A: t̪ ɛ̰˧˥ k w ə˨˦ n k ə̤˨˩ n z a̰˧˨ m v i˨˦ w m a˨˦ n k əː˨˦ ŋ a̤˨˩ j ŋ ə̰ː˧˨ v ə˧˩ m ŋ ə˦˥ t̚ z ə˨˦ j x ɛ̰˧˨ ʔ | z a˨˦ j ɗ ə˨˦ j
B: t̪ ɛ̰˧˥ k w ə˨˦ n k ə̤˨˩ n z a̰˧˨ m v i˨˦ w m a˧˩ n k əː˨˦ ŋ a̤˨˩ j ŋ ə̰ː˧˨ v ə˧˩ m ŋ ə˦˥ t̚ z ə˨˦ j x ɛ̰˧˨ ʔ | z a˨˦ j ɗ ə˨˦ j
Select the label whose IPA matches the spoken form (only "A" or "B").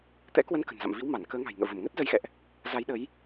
B